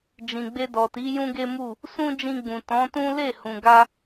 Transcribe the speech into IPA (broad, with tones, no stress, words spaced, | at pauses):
d͡ʒĩ˨ɡ͡be˧ dɔ˨ti˨˦ jũ˦ɡe˦mu˦˨ | sũ˦d͡ʒĩ˧ɡ͡bũ˨ tɔ̃˨˦tũ˦ le˦˨hũ˨ɡa˧